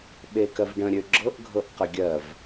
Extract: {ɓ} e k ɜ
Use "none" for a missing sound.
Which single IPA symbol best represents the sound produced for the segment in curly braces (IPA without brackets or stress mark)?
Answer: ɓ